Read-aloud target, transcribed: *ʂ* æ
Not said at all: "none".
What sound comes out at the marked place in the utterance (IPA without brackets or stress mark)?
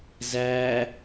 z